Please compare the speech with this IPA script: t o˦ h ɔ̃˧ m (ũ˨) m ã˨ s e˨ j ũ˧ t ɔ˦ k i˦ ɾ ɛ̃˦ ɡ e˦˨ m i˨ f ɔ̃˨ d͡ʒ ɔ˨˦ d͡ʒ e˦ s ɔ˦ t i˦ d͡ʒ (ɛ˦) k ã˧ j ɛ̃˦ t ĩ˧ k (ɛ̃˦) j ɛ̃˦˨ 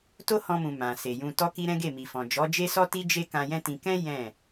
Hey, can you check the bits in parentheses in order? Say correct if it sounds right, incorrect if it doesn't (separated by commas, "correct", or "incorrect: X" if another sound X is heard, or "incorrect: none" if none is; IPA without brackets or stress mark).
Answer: correct, incorrect: e˦, correct